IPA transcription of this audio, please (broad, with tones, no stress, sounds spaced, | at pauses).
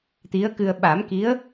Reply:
t̪ i˧˥ ə̯ k ɨ˧ ə̯ ɓ a˨˩˦ m k i˧˥ ə̯